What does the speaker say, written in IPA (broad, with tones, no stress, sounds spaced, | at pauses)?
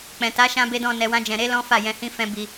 k͡p ɛ̃˨ t a˨˦ ʃ ã˧ b e˧ d ɔ̃˧ n ɛ˧ w ã˦ d͡ʒ ɛ̃˧ ɾ e˦ l ɔ̃˦ f a˦˨ j ɛ̃˧ h ĩ˦ f ɛ̃˦ b i˧